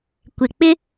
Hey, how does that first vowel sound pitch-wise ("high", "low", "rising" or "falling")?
low